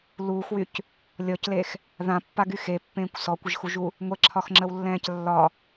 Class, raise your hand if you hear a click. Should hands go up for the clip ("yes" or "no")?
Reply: yes